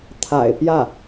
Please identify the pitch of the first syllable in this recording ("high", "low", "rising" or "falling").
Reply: low